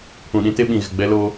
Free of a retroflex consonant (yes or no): yes